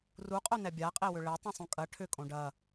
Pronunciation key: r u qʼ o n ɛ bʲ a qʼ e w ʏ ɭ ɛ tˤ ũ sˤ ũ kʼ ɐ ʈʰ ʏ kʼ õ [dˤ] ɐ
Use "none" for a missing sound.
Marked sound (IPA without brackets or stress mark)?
ɖ